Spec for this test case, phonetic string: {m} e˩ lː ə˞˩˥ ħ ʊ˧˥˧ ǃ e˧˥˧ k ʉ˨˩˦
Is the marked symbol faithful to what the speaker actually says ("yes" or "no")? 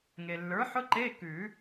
no